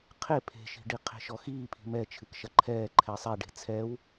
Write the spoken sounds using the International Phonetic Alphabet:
qʰ e pʰ e̤ ʃ i̤ ɖ i qʰ e̤ ʃ ɔ x iː pʰ i̤ m ɛ t͡ʃʰ ɨ k ʃ ɐ ǃʰ ɛː ǃʰ ɛ sˤ ɛ ɖ e̤ t͡sʰ ɛ w

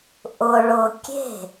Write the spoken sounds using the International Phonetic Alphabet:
ʔ ʊ ɭ ʊ kʲ e̤

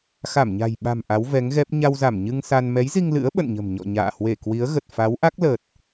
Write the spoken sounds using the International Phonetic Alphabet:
x a˧˩ m ɲ a̤˨˩ j ɓ a̤˨˩ m ʔ a˨˦ w v ɛ˨˦ ŋ ɣ ɛ˦˥ p̚ ɲ a˧ w z a˧˩ m ɲ ɨ˧ ŋ s a˧ n m ɛ˨˦ j z i˧ ŋ l ɨ̰˧˥ ə̯ ɓ ə̰˧˨ n ɲ ə̤˨˩ m ɲ ɔ̰˧˨ ɲ a̰ː˧˨ h w e˧˩ k w i˨˦ ə̯ ɣ ə˨˩ t̚ f a˨˦ w ʔ a˦˥ k̚ l əː˨˩ t̚

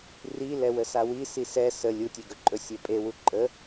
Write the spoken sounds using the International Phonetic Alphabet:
r i l ɛ w ə s a w i s i s ɛ s ə lʲ u tʲ e ɡ ɵ ǃʼ ɵ sʲ e pʼ e w u ǃʼ ə

